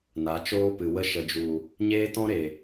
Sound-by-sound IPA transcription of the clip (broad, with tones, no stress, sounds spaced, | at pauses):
n a˨˦ t͡ʃ oː˦ p ɨ˨ w ə˧ ʃ ə˨ d͡ʒ u˨ | ɲ eː˦ t ɔ̃˦ ɾ e˨